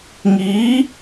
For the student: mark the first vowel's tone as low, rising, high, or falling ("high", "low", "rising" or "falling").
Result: rising